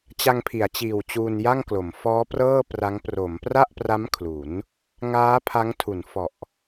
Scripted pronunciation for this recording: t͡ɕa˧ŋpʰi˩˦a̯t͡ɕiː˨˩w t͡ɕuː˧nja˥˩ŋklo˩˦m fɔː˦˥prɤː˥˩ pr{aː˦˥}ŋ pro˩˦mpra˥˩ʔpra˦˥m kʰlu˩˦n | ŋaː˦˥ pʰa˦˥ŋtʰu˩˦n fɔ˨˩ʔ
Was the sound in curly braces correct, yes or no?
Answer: no